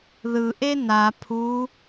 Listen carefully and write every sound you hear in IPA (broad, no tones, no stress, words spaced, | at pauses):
ðɯ ʔena pʰu